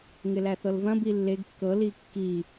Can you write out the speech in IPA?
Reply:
ŋ ɪ l æ θ ɤ l v ɐ̃ b i lː e ɡ kː ɤ l i kː i

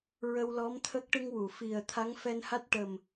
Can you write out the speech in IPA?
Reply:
ɹ ə˧ w l ɔ˧˥ m t̪ʰ ə˦˥ k̚ ʈ ɨ˧ ŋ w u˨˩˨ f i˨˩ ə̯ t̪ʰ a˧˥ ŋ f ɛ˧ n h a˦˥ t̚ ʈ ə˨˩ m

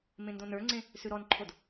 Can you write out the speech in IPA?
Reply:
m ẽ n d õ n ə˞ ŋ͡ǀ ẽ | s ʉ ɾ ɔ n ǃʰ o d

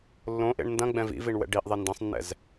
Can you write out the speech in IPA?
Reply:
lː õ ʔ ḛ ɳ n d ɐ̃ ɡ͡b ɛ̃ v ḭ v i ɳ w ɛ̰ ɖ i ʔ ðˤ e n d ɐ̃ sˤ nː ɛ̰ z

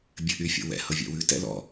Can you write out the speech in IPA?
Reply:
bʲ ɘ ʔ y fʲ o̰ w ɛ̰ h ɤ vʲ ɛ̰ w ʉ t ɛ̰ l ɔ̰

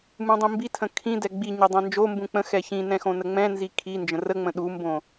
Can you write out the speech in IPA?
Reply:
m ũ dˤ ĩ m b i tʰ ə̃ kʰ ĩ d ɛ ɡ͡b i ɲ ɛ dˤ ɛ̃ n d͡ʒ o m b ũ k͡p ə̃ x ɛ ç ĩ n ɛ̃ x õ n ə ŋ͡m ɛ̃ n z i kʰ i n d͡ʒ ə̃ r ə ŋ͡m ə̃ ɗ u m b õ

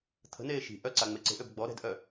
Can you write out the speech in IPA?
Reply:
t̪ʰ ə̤ n eː ʃ i̤ ʔ œ ǀ a ŋ͡m e ǀ e̤ ʔ ø b ɡ͡b ɔ ɾ ɛ̤ d ʔ œ

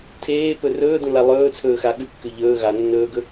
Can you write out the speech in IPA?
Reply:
tʰ eː p ɵ r ɵː d ũ l a lˠ ɵː t͡sʰ ɵː x a ɠ ʉ kː ʉ ʎ ɵː ɣ a nː ɵː ɡ ɵ

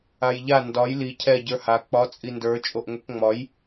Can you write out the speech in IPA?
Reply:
a j ʎ a n d ɒ j l i cʰ ɛ ɟ ə˞ h a k͡p ɒ t͡sʼ i n d ə˞ t͡ʃʼ o ʔ ŋʷ ɛ k ŋ͡m ɒ j

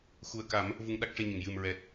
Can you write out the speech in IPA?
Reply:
x u˨˩ ə̯ k a˨˩˦ m | v u˧ ŋ ɗ a˦˥ k̚ ʂ e˧ ɲ ə˨˩˨ ŋ j ɨ˨˩ m ɹ ɛ˨˩ t̚

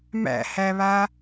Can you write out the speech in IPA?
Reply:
m æ̰ h æ β a

